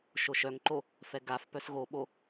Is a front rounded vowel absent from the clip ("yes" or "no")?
no